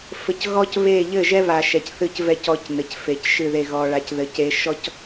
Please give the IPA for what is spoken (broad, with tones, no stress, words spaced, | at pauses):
fɘ˨cɣɔ˦c βe˦˨ ʎɘ˦˨ʒɛ˦βa˨ ʃɛ˨cθɨ˦˨cvɛ˦ cɔ˦cnɘ˨cfe˨cʃɨ˦˨ ðe˨ɣɔ˨ɭa˨˦c ðɘ˨ce˦ ʃɔ˦c